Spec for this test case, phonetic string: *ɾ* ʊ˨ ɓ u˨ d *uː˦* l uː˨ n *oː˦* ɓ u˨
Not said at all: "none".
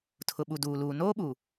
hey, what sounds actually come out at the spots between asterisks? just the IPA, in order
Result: tʰ, uː˨, oː˦

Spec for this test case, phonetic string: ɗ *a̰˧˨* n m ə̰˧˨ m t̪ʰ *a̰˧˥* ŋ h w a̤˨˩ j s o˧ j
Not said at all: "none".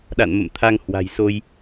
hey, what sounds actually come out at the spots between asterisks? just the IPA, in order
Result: a̰˧˨, a˧

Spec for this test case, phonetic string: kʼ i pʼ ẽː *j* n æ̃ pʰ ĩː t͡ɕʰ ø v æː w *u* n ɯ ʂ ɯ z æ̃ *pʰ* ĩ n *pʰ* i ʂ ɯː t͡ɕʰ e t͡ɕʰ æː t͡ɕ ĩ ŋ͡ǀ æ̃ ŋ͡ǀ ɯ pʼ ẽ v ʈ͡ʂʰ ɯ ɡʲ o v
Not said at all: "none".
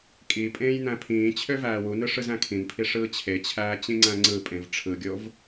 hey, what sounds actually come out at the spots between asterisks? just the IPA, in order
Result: j, u, kʰ, pʰ

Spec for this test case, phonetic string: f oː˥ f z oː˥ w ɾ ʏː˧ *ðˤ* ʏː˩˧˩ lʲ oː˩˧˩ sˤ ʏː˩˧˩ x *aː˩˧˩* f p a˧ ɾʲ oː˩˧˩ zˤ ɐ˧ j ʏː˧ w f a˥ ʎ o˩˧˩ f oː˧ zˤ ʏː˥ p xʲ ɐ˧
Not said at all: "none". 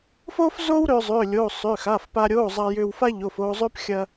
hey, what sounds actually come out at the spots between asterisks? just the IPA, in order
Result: zˤ, aː˩˧˩

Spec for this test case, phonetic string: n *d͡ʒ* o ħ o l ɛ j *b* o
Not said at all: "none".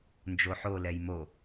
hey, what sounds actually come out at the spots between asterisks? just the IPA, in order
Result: d͡ʒ, m

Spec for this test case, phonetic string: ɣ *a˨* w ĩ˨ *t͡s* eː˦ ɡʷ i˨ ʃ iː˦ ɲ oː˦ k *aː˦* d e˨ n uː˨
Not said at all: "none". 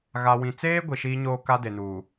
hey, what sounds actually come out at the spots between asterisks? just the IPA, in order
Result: a˨, t͡s, a˦

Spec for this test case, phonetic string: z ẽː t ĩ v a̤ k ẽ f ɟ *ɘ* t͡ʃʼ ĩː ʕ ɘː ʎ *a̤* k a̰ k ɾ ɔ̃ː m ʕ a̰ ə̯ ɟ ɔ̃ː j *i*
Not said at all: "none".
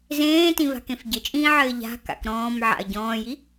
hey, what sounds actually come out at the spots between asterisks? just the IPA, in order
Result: ɘ, a̤, i

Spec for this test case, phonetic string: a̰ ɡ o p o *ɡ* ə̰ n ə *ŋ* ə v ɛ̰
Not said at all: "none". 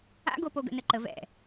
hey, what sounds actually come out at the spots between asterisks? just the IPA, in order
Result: ɡ, ǃ

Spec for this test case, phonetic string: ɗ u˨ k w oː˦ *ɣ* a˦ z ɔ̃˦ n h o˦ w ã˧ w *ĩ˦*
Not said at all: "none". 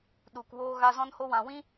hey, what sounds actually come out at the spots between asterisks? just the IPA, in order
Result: ɣ, ĩ˦

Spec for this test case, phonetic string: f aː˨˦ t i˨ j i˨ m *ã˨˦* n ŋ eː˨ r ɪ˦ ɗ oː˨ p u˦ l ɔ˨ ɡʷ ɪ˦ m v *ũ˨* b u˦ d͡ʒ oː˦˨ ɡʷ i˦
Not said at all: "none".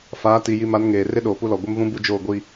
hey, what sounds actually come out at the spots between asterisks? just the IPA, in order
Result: a˨˦, ũ˦

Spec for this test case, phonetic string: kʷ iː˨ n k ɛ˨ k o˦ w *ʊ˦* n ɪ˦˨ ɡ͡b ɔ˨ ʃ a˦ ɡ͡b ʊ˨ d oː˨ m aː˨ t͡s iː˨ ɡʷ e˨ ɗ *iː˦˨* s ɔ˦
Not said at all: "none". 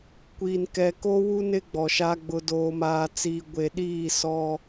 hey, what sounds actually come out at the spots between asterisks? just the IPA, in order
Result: u˦, iː˦˨

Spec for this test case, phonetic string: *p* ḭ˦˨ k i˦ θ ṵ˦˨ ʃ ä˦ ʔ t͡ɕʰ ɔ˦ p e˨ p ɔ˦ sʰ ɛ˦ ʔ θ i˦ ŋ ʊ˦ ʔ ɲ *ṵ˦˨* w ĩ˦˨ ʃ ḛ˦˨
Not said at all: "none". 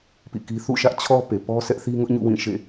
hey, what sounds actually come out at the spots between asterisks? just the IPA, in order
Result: p, ṵ˦˨

